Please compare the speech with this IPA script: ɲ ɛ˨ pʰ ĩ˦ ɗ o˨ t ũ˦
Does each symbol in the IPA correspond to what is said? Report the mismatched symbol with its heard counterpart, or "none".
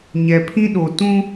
none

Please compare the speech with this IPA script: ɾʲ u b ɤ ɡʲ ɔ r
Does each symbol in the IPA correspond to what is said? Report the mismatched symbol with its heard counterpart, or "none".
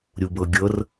ɔ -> ɤ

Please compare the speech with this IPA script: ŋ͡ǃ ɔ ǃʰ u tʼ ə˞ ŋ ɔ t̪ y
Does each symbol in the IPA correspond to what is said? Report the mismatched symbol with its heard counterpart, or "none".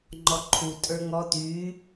none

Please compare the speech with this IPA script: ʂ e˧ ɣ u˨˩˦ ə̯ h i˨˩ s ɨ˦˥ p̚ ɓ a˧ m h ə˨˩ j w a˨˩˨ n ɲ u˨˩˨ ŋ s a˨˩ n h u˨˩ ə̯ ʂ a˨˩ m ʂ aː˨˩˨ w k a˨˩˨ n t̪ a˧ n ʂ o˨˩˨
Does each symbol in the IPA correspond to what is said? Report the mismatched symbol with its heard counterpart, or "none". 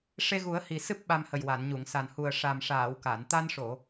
none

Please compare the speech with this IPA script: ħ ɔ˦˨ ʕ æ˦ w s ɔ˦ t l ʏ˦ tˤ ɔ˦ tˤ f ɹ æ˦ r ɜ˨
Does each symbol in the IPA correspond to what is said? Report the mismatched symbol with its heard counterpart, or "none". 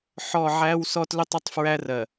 none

